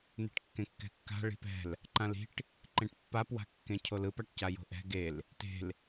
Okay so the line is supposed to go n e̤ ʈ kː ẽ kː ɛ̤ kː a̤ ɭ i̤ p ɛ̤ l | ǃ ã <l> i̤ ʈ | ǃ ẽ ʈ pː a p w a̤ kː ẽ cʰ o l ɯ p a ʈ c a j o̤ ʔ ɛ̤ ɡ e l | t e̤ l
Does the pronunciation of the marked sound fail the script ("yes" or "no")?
no